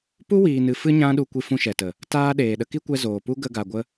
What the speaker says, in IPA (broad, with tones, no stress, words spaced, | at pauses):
pu˦wiː˨nɨ˨ fɨ˦ɲã˦ɗu˧ kʷi˧fũ˧ʃɛ˨tə˨ | taː˧ ɗeː˨ɗə˧ki˦kʷɛ˧ zoː˨pu˦ ɡə˧ɡa˨ɡʷə˧